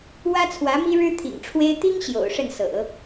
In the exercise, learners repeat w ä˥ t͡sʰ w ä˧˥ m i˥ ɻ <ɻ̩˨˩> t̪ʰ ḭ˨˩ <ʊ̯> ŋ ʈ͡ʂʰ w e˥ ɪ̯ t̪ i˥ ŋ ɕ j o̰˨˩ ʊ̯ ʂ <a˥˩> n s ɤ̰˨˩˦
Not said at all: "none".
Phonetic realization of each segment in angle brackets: ɻ̩˥, none, ə˥˩

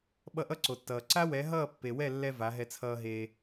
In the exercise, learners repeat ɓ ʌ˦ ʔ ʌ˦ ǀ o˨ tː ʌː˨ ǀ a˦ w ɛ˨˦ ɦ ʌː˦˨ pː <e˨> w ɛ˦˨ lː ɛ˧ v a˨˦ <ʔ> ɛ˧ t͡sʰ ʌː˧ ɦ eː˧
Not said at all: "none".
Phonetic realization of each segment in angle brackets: e˨, ɦ

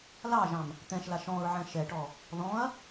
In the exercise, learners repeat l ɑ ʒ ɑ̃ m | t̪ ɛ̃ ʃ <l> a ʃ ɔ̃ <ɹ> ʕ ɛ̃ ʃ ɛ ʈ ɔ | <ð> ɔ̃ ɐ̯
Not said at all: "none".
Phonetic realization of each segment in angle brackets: l, ɹ, ð

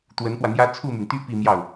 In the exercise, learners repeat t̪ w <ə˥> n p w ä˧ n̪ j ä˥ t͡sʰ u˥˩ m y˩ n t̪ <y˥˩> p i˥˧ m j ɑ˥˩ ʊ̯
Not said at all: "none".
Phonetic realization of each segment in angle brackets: ə˧˥, y˥

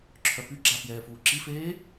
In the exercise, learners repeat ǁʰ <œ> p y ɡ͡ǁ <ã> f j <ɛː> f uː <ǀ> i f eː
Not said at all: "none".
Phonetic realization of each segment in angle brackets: œ, a, ɛː, ǁ

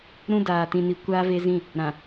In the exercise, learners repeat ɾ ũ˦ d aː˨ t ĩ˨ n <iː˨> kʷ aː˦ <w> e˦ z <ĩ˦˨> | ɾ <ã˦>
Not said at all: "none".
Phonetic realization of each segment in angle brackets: i˨, v, ĩ˦˨, ã˨

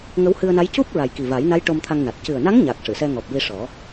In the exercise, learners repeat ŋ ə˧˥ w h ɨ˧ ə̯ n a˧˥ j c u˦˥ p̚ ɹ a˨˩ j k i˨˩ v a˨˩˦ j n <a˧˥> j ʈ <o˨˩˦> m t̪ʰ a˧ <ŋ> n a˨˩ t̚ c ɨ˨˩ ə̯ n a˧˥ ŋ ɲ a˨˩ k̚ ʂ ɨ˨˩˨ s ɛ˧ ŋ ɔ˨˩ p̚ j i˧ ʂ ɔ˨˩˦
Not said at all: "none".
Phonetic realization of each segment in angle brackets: a˧˥, o˧, ŋ

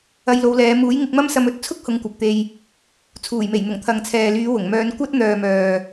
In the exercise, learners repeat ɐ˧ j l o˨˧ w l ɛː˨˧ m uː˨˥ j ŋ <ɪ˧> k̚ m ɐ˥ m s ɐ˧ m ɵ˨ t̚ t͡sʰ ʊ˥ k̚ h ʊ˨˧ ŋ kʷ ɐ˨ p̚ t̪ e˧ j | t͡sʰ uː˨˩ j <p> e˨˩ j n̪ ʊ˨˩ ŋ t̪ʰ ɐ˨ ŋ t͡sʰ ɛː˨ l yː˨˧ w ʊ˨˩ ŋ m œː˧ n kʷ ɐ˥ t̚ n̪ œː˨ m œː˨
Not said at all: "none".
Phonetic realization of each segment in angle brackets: ɪ˧, m

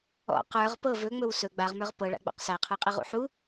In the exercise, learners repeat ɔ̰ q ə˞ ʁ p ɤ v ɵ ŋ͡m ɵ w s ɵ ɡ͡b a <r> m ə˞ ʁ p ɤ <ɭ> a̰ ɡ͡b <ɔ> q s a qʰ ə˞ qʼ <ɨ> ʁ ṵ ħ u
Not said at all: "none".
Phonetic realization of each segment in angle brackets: ʁ, ɭ, ɔ̰, ɨ

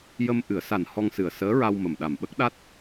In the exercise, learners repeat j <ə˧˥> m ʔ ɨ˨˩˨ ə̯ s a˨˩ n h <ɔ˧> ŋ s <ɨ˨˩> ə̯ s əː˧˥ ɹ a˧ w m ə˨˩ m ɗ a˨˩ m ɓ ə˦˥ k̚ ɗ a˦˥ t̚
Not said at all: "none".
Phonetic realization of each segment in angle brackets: ə˧, ɔ˧, ɨ˨˩

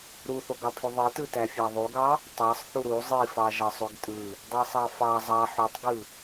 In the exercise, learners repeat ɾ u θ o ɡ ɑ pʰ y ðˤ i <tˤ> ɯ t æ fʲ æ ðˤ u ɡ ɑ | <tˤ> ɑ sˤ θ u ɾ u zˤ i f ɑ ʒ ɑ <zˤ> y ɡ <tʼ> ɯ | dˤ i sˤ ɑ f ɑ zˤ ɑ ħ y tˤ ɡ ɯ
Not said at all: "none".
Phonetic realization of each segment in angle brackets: t, tˤ, sˤ, tʼ

